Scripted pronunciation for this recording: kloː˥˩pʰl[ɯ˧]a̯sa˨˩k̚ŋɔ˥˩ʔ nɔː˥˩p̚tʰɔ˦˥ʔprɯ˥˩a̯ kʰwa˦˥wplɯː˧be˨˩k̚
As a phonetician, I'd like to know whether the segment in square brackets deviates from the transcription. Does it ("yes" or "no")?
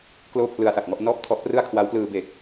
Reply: no